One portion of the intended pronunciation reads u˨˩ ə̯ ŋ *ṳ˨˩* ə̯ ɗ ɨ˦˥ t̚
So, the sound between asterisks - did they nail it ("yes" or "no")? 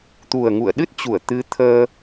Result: no